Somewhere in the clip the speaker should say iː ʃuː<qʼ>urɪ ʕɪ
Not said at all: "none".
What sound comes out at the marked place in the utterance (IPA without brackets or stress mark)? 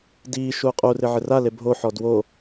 qʼ